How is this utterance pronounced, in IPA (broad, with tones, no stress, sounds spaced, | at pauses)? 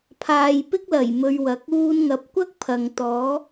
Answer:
pʰ aː˧ j p ɪ˥ k̚ l ɐ˨˩ j m ɵ˧ ɥ w ɐ˨˥ k̚ uː˥ n ŋ ɐ˨˥ p̚ kʷ ɐ˥ k̚ pʰ ɐ˨ ŋ t̪ ɔː˨˥